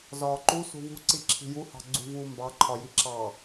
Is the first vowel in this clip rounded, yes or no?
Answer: yes